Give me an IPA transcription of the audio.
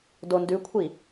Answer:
d o n d ʉ kʷʰ i

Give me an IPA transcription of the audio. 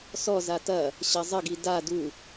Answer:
s ɔ z a t ɐ | ɕ ɐ zˤ ə ɡ i d a d u

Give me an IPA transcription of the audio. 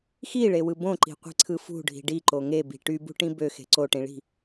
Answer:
x i ɭ e w ɯ b õ ǃ i̤ qʷ i̤ ǀʰ ɯ f ṳ ɖʱ i̤ ɖ i ǃ o ŋ e b i̤ ʈ y b ṳ ʈ ĩ b ø x e̤ ǀ o ʈ ĩ ɭ i̤

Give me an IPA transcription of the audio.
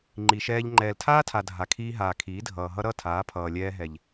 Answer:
ŋ͡ǃ i˨ ʃ ɛː˧ ʎ ŋ͡ǃ ɛː˨ l tʰ aː˦ tʰ a˨ dʱ a˨ kʰ iː˧ ɦ aː˨ kʰ iː˨˦ dʱ ʌː˨ ɦ ʌ˦ ɾ ʌ˦˨ tʰ aː˨˦ pʰ ʌː˨ lʲ ɛː˧ ɦ ɛ˨ ʎ

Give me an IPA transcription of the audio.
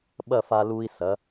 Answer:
ɓ ɐ˥˧ f a˧ l u˧ i̯ s ɐ˩˧

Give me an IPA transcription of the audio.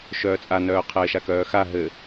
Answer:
ʃ œː t͡sʼ a n œː qʰ ɘː ʃ a k œː x a ɦ ɘ

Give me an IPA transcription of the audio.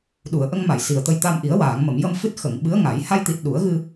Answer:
ɗ u˨˩˨ ə̯ ʔ ə˧ ŋ m a˨˩˨ j s i˨˩ ə̯ t̪ ə˧ j t̪ a˧ m ʔ i˨˩˦ ə̯ w aː˨˩˨ ŋ m ə˨˩˨ m j ə˧ m f ɨ˦˥ t̚ x ə˨˩˨ ŋ ɓ ɨ˧˥ ə̯ ŋ a˨˩˦ j h a˧ j t̪ i˨˩ t̚ ɗ u˨˩˦ ə̯ ɣ ɨ˧

